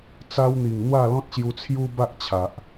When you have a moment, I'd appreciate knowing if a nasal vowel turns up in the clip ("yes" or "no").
yes